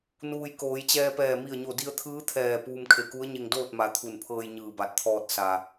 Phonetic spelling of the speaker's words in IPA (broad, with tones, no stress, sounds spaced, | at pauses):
n uː˩ j k oː˩˧ j t͡ɕ ɛː˧ p ɛː˧˩ m i˧˩ ə̯ ɲ o˧˩ d i˧ ə̯ t̪ʰ ɯː˧˥ t̪ʰ ɛː˧˩ p uː˧ m kʰ e˧˩ k u˧˥ ə̯ ɲ e˧ ŋ d oː˥˨ t̚ m a˩˧ t̪ʰ u˧˩ n pʰ ɤː˧ j ɲ ɯː˧˩ b a˧˩ t̚ t̪ʰ ɔː˧ t̚ s a˩